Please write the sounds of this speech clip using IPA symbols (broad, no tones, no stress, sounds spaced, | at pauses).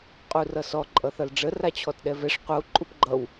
qʼ u r ʌ s ɔ ǃʼ ʌ θ ʌ l ɖ͡ʐ ə r a t͡ɕʰ ɔ t ɗ ɛ v ɛ ʂ qʷ ʌ u̯ ǃʼ u p ɡ͡ǃ ʌ w